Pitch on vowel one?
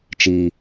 low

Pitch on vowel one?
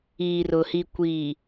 low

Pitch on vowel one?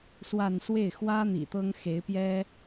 falling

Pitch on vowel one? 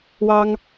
high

